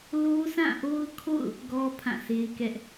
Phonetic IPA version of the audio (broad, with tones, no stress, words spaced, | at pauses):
lo˦sã˦˨ʔo˦ʊ̯kʰo̰˦˨ʊ̯ | ɡɔ˦ pʰã˦˨sʰe˦ɪ̯kɛ˦ʔ